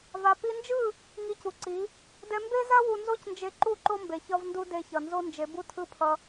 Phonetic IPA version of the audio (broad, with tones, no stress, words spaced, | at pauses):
va˧ pi˧nd͡ʒɯ˦˨ | ŋi˧cu˨ǀi˨˦ | dɛ˧mbe˦za˦ wu˧nzo˦cnd͡ʒe˧ǃu˦˨ ǃo˦mbe˨ çʌ˦vndu˦ de˧çʌ˨ nzo˦nd͡ʒe˨˦ bu˦tʰɯ˦pʰʌ˧